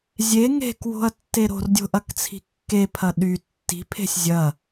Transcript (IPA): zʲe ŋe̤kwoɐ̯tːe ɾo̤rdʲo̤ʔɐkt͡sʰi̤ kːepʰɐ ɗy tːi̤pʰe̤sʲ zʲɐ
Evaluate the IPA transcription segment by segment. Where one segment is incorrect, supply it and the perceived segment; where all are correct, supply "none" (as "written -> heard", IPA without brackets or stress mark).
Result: o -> o̤